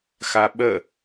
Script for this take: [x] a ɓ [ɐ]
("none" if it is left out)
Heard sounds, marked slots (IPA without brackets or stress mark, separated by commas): x, ə